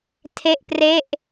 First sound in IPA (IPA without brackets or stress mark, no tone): tʰ